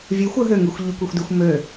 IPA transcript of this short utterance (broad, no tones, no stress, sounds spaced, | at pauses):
vʲ ʉ xʷ ɵ ɦ ø ŋ ʉ xʷ ʎ ʉ kʷ y xʷ d y xʷ m ø